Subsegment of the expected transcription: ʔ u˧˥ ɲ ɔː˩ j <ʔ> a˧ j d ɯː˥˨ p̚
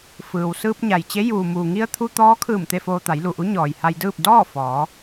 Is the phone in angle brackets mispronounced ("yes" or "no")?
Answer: yes